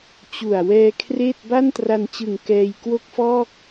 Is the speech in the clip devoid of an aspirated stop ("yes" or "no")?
no